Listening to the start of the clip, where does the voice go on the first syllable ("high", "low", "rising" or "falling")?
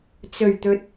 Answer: low